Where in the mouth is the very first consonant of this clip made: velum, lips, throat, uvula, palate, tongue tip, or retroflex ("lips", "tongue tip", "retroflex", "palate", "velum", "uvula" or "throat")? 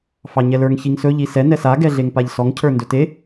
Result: lips